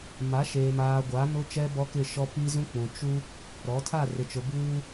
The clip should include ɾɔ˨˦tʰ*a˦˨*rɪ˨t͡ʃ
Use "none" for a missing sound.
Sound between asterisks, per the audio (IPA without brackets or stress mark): a˦˨